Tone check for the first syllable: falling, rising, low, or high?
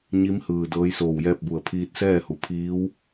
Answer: rising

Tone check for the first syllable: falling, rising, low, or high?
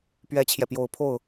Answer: high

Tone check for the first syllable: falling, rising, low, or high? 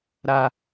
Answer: low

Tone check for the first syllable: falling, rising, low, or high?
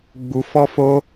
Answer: high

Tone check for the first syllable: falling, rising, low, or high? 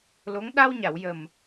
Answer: rising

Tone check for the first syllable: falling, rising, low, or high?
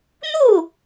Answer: falling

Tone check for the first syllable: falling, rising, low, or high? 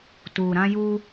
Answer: low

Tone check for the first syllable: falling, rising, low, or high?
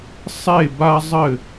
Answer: falling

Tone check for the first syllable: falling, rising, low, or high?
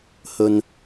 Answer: low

